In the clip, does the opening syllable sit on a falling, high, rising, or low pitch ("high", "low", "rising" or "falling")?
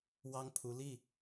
high